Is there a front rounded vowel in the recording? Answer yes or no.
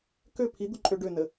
yes